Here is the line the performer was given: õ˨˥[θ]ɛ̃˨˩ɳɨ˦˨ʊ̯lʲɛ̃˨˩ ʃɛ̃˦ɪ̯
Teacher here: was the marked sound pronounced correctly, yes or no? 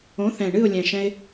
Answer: yes